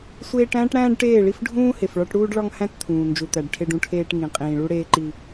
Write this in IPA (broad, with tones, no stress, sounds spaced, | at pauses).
sʷ eː˦ ʈ æ̃ː˦ ʈ ɽ æ̃ː˦ ɖ ʈ eː˦˨ ɭ i˦ f ɖʱ ũː˦ h e˨ f ɭ ɒ˦ ʈ ɽ uː˦ ɖ ɭ ɒ˦ ŋ h æ̃˦ t t̪ʰ ũː˨ n d͡ʒ u˨ t̪ æ˨ ɖ ʈʰ e˦ ɖ ũ˦ ʈʰ eː˦ ʈ ŋ ĩ˨ qʼ ĩː˨ ɭ u˦ ɽ eː˦ ǃ i˦